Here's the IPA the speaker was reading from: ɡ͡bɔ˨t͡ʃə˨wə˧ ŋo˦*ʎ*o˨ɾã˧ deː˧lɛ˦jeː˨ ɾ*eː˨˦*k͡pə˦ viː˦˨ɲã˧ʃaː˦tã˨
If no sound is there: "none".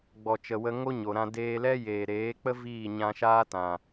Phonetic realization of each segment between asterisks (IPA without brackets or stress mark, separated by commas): ɲ, eː˨˦